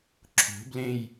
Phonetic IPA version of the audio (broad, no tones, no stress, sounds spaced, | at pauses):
ǁʰ o̤ b l ẽ j